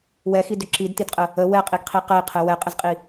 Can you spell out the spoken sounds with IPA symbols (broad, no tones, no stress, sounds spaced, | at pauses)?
w ɛ x i d ʏ ǁ i d t i d qʼ ə | ə w ɛ qʼ i ɡ qʰ i q ɛ i̯ qʰ ɛ w ɛ qʼ ə z qʼ i